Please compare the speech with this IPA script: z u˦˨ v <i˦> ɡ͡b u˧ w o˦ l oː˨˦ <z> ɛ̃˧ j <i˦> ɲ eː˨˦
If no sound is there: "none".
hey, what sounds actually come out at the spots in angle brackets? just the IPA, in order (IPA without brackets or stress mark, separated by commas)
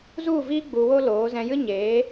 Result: i˦, z, ɨ˦